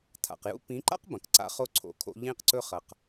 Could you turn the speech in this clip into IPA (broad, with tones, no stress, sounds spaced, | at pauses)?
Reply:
tʰ a̰˨ q j ṵ˦ p ĩ˨˦ ǃ a̰˦ q b ɐ̃˨ k ǀ a̰˦ χ o˦ ǀʰ o̰˨ kʰ o̰˦ ʎ ĩ˦ q ǀ ɵ˦ χ ɐ˨ q